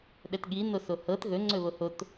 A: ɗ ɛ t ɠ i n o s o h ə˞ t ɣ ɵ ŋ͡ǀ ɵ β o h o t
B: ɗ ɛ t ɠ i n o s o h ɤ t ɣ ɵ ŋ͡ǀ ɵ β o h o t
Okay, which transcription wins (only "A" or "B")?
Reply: B